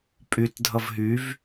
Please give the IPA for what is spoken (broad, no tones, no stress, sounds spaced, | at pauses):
pʼ y t dʱ ʌ v ɦ y v